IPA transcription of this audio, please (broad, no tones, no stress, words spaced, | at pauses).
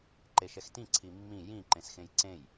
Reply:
ǃeʃɛxtĩ ǀʰimːĩ jĩ ǃẽsxẽjǀẽj